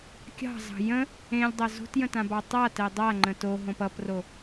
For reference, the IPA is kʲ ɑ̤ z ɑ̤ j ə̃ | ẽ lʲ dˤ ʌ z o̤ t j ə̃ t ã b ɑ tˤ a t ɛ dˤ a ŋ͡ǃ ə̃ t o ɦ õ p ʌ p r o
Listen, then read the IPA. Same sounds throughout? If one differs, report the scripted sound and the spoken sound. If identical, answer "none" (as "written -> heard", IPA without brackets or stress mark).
none